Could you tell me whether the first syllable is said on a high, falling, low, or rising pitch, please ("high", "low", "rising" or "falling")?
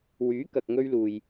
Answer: rising